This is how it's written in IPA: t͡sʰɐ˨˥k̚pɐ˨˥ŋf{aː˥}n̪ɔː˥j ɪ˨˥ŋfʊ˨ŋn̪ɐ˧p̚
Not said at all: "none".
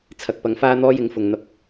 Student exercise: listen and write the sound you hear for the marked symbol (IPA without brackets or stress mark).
aː˥